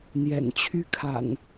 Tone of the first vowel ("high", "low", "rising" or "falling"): low